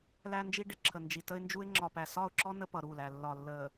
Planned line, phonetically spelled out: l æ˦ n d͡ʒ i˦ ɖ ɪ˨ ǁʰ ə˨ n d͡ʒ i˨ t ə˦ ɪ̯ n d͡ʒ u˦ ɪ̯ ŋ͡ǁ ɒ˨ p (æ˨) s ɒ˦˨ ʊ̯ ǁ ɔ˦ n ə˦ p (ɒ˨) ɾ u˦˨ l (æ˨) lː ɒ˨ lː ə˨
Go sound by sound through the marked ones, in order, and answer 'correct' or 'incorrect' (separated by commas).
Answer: correct, incorrect, correct